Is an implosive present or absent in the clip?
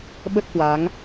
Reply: present